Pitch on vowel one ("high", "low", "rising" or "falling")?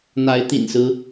rising